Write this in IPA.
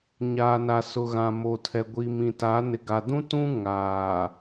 ɲaː˨na˨ sʊ˨ɣã˨mo˨tʰɛ˨ ɡʷi˨mĩ˨ta˨˦ nɪ˨ɡa˨dũ˦tũ˦ ŋaː˨

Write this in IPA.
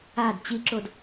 ad t͡ɕiǁod

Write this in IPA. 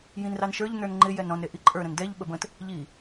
jĩnrɑnʃə˞ʎ nə˞nŋ͡ǃɪ jɛnɾɔ̃n ɾeʔiǃʼə˞ ɾə̃ndɛʎ ɓəbə̃t | ʎi

